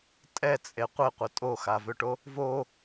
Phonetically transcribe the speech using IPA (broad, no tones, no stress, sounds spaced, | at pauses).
tʼ ɛ t͡sʼ e qʷ e qʷ ə tʼ o x a v ø ʈ o | v o